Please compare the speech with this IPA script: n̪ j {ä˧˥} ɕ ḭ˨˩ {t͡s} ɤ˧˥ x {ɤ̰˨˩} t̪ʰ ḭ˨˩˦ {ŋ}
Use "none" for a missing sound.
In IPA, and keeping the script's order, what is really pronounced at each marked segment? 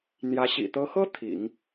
ä˧˥, t̪, ɤ˥, ŋ

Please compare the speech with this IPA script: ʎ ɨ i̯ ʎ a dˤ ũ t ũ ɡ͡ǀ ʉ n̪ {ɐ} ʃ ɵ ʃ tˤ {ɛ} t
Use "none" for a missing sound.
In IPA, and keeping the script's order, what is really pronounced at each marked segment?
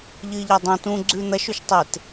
ɐ, e

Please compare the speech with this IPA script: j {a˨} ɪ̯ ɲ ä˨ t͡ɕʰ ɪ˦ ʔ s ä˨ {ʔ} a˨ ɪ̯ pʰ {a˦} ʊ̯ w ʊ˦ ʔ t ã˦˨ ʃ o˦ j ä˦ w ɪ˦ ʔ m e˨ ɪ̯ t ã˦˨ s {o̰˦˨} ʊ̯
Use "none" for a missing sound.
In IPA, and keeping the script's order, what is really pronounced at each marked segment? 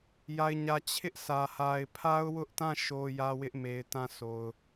a˨, h, a˦, o˨

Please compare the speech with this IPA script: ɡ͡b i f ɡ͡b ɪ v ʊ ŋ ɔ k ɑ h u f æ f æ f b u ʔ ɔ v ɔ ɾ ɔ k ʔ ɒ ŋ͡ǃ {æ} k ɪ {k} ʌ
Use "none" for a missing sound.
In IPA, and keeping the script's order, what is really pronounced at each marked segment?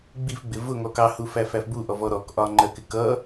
ɜ, k

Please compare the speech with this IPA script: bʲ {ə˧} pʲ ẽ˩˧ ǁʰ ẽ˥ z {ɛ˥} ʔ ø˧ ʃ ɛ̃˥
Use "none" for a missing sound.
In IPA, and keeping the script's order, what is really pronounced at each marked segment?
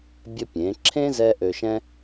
ə˧, ɛ˥

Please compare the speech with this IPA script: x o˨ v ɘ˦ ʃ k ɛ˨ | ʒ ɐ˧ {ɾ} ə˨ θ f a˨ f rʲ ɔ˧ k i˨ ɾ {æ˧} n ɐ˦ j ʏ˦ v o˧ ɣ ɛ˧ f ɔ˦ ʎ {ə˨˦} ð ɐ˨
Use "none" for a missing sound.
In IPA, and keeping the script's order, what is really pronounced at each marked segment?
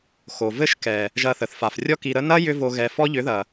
θ, ə˧, ʏ˨˦

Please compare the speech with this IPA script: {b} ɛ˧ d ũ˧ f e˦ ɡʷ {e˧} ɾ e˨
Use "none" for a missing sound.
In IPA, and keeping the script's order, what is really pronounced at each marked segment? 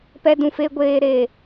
p, eː˧

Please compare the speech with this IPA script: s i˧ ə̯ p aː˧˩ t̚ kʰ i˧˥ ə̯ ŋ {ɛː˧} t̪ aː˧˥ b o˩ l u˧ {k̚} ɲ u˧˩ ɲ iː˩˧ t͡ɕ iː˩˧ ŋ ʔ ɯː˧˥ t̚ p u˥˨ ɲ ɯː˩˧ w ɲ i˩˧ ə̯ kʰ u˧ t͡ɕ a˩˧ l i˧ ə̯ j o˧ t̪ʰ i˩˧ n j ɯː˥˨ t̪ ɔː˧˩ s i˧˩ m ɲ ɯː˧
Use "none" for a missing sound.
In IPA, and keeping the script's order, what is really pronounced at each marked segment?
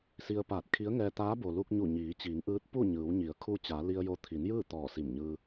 ɛː˧, k̚

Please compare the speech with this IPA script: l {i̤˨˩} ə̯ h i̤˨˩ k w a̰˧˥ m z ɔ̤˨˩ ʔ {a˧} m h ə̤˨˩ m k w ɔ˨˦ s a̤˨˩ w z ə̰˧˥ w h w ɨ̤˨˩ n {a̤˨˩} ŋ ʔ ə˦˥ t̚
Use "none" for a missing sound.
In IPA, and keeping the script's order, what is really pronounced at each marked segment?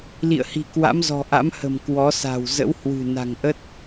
ḭ˧˨, a̰˧˥, a̤˨˩

